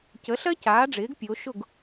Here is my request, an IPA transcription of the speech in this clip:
c ə˩˥ ɬ ɜ˥ c aː˩˥ ɖ͡ʐ ɪː˩˥ ɡ pʲ o˩˧ ʃ ʊ˥˩ ɡ

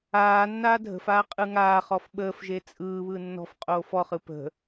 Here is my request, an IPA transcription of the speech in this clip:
aː nː aː dʱ ə̤ f aː qʼ ɯ ŋ aː χ ɔ f ɓ əː f ʒ e t͡sʼ ɯː β ɯ nː ɔ̤ f qʼ oː f ɔ χ ɯ p ə̤

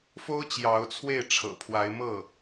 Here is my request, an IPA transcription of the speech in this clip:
f o˥ ʊ̯ t͡ɕ j ɑ˧˥ ʊ̯ t͡sʰ w e˥˩ ɪ̯ ʈ͡ʂʰ ɤ̰˨˩ pʰ w a˧˥ ɪ̯ m ɤ˥˩

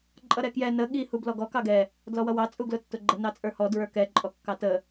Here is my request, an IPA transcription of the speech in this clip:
ǃʼ ʌ ɾ ɛ k j ɛ n ə ɠ i h u b l ɔ ɡ ɔ k ɑ ɡ ɛ | d l ɔ w ʌ w ɑ t͡sʼ u ɡ l ʊ tː ʊ ɡ͡ǃ ə n ɑ t͡sʼ ə˞ h ɔ d ɹ ə˞ k ɛ ǃʼ ɔ kː ɑ t ə

